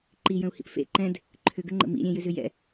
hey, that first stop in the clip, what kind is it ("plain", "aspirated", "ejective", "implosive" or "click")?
click